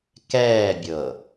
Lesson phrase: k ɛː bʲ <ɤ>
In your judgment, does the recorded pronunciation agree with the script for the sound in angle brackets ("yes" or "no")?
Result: yes